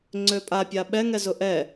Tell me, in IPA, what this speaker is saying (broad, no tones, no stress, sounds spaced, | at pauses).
ŋ͡ǀ ø pʼ a pʲ a ɓ ɛ ŋ ɛ z ʊ ʔ ɛ